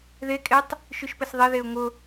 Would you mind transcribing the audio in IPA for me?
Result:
ð e kʼ e tˤ | ʃ y ʃ p ɘ s ðˤ e ð e ʊ̯ ŋ ʊ

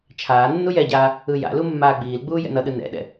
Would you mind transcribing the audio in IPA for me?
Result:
t͡ʃʰ aː nː u j ɛ ɟ aː | ɯ j a̰ l u mː aː ɡ͡b iː l ɡ͡b uː j ɛ̰ n ʌ ɗ ɯ n ɛ̰ ɗ ɛ̰

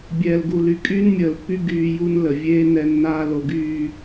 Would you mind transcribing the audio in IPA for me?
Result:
bʲ ɛː˨ l ɡ u˨ l y˨ kʼ yː˦ n mʲ əː˨ l pː y˦ ɡ yː˦ j u˦ n l ə˨ vʲ eː˦ n ɛ˦ nː aː˦ l o˨ ɡ yː˨

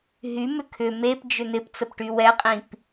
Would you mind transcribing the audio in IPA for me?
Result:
ɦ y m ʏ kʰ ʏ m e p d͡ʒ ʏ n̪ ɪ p t͡s ə p ʈ y w ɛ qʼ ĩ p

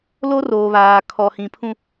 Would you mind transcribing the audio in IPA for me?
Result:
l o˦ r oː˨ β aː˨ kʰ ɔ˨ h ĩ˨ pʰ ũ˦

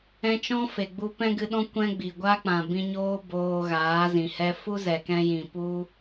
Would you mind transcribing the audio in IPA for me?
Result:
ɛ̃˧ t͡ʃ ɔ̃˦ f e˨ ɡ͡b u˧ p ɛ̃˦ ɡ ɨ˧ ɗ ɔ̃˦ kʷ ɛ̃˦ ɡ͡b i˨ ɡʷ a˦ k͡p ã˨ b ĩ˧ ɲ oː˦ b oː˧ ɣ aː˨˦ z ĩ˨ h ɛ˦ f u˦ z ɛ˨ k ɛ̃˧ j ĩ˨ p u˦

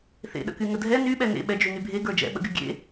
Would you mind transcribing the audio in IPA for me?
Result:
θ ḛ ɗ ə̰ k y ŋ ə dʱ ɛ n y ɓ ɛ n ḛ ɓ ɛ d͡ʒ y n y bʱ e ɡ ə˞ d͡ʒ ɛ̰ ɓ ə̰ ɡ y ɡʲ ḛ

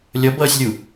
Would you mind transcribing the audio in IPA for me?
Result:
lʲ ʌ b ʌː sʲ lʲ u

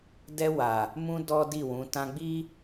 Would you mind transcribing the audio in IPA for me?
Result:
d ɛ˧ w a˨ | m ũ˧ d ɔ˦ d i˦˨ w ũ˨˦ t ã˧ ɡ͡b i˦

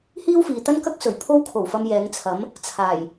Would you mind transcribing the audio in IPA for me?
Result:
h iː˥ w f iː˨ t̪ ɐ˥ n k ɐ˥ k̚ s ɵ˨˩ ɥ pʰ o˥ w kʰ o˨˩ w f ɐ˧ m j ɛː˨˧ ŋ t͡sʰ ɐ˨˥ m | t͡sʰ aː˨˩ j

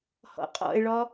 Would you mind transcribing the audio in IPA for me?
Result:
h ɔ̰ qʼ ɔ̰ e̯ ɭ ɔ

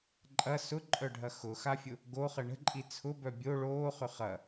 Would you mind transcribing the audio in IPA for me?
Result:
ǃʼ ɐ s ʊ ǃʼ œ ɖʱ ɐ x ʊ x a fʲ ʊ | ɡ o χ ə ɳ ə̤ ǃʼ i t͡sʰ ʊ b œ bʲ o ɭ oː χ ʏ χ ɐ

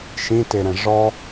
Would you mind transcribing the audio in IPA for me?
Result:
ʃ ĩ t e ɾ ɛ̃ ʐ ɔ

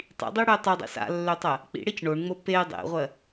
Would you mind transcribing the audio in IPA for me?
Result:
tˤ ḭ dˤ e ɽ ø tˤ ø dˤ ḛ s a̰ lː ø tˤ ɜ | k͡p ḭ ɽ e c ɳ o ɳ ŋ͡m o p e dˤ ḛ ʁʷ ɜ

